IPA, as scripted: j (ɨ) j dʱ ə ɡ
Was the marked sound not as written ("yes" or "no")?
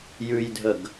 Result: yes